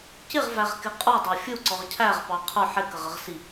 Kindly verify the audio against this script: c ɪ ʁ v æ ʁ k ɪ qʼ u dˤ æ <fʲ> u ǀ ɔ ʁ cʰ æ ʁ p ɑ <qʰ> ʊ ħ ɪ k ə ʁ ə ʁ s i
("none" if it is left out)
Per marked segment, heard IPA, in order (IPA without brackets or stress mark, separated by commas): fʲ, qʰ